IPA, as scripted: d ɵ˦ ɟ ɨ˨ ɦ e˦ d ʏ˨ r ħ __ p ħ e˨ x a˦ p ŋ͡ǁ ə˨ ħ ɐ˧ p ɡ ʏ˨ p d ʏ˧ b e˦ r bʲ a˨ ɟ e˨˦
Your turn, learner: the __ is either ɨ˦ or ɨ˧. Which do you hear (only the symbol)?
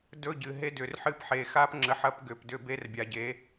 ɨ˦